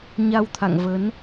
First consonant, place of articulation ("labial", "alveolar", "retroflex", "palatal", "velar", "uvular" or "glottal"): palatal